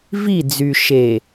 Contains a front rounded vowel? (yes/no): yes